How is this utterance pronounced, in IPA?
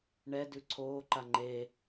ɳ ɛ d ʉ ǀʰ oː ǃ a ŋ͡ǃ e

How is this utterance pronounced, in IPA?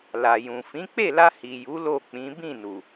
l a˨ j ũ˨ f ĩ˨˦ k͡p e˦˨ l a˧ h i˨ j u˨˦ l o˦˨ k͡p ĩ˨˦ b ĩ˦˨ n u˨

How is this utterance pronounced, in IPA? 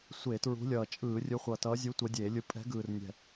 sʷ e˧˩˧ t ɹ ṳ˨˦ lʲ ʌː˨˩ t͡ʃʼ ɯː˧˩˧ rʲ ɯ˨˦ χʷ ʌ˨˩ t ʌː˨˦ zʲ u˨˦ tʷ ʌ˨˦ dʲ eː˧˩˧ lʲ ɯ˨˦ pʼ ɛ̤˨˦ ɡ ɯː˨˩ r nʲ ɛ̤˨˩

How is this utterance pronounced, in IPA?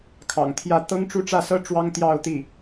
kʰ ɑ̰˨˩ ŋ t̪ʰ j ä˥˩ t̪ ɤ˥ ŋ ʈ͡ʂ u˥ ʈ͡ʂ ä˥˩ s ɤ˥ ʈ͡ʂ w ɑ˥ ŋ t̪ j ɑ˥˧ ʊ̯ t̪ i˥˩

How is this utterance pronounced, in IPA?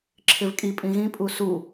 ǁʰ ɪ v kʼ i pʼ ĩ ɣ ĩ pʼ u s u

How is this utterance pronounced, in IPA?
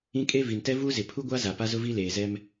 ĩ˦ kʼ e˦ v i˨ n t ɛ˦ v uː˦ z ɪ˨ pʰ u˦ ɡʷ a˦ z a˨ p a˦ z ʊ˦ v i˦ l eː˨ z ɛ˦ m

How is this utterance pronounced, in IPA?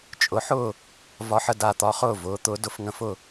t͡ʃʼ ʊ˩˥ ħ ʊː˥˩ | v ɒ˧ ħ ə˥˩ d a˥˩ t̪ ɒ˧ χ ʊː˥˩ v ʊː˩˥ t̪ ʊː˩˥ d ʊ˧ f ŋ ə̃˧ f ʊ˥˩

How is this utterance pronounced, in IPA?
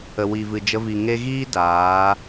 ə˨ w i˨ v ɨ˨ d͡ʒ ə˧ v i˨ ŋ e˦ ɣ iː˦ d aː˨˦

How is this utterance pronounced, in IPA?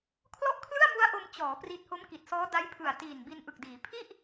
kʰ l ɔ˥˩ ʔ kʰ l ɯ˥˩ a̯ m u˦˥ a̯ ʔ o˧ m t͡ɕ ɔː˩˦ p r i˦˥ t̚ h o˦˥ m k i˨˩ t̚ s ɔː˦˥ d a˦˥ j pʰ ɯ˨˩ a̯ t iː˨˩ n b i˧ n ʔ ɯ˨˩ k̚ d iː˩˦ pʰ i˥˩ ʔ

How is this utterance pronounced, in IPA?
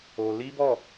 o˧ l i˦ b ɔ˦˨

